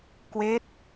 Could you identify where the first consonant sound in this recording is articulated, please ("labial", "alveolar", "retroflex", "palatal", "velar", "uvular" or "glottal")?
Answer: velar